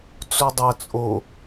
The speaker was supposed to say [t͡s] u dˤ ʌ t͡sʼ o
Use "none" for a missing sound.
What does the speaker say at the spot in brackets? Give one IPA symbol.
t͡s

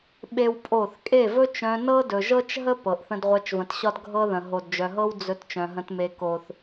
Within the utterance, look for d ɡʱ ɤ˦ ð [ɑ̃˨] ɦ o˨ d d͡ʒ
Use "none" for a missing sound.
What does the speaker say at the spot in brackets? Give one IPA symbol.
ə̃˨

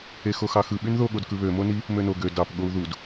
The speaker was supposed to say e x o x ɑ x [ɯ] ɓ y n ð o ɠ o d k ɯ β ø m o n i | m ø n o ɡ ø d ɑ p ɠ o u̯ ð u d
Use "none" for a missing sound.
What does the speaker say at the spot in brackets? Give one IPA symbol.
ɯ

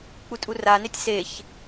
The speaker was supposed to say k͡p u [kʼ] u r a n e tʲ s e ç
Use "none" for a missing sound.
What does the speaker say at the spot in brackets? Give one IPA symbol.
tʼ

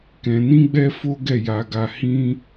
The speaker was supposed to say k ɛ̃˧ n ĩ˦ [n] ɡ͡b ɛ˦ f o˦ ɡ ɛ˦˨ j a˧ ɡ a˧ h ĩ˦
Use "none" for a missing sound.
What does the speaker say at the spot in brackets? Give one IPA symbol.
none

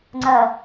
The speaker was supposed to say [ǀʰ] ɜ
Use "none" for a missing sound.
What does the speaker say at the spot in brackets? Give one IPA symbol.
ŋ͡ǀ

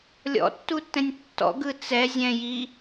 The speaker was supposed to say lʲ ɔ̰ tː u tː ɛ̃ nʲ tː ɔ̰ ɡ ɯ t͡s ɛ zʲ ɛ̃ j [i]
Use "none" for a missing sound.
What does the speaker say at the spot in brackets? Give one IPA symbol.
i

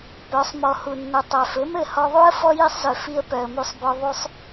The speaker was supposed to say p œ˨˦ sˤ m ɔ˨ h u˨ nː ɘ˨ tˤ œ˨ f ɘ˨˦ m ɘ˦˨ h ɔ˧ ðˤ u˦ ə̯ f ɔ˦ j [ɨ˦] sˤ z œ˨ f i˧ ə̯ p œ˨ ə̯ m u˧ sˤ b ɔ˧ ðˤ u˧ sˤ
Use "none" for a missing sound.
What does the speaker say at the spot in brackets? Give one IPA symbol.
i˦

